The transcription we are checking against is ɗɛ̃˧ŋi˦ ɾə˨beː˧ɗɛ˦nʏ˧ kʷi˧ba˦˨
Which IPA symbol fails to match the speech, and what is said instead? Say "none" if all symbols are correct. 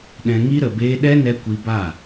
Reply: ʏ˧ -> ɛ˧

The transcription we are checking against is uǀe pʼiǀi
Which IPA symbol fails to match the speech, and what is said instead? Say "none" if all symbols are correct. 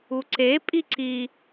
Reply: none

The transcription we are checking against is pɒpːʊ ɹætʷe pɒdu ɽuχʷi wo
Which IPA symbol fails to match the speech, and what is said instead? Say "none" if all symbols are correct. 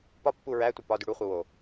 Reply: ʊ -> u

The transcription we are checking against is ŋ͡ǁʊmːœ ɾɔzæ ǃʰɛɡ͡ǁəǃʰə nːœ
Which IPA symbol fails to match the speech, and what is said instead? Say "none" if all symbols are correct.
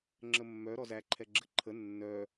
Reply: ʊ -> ə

